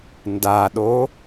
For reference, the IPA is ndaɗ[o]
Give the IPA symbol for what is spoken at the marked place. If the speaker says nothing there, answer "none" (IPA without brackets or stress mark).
o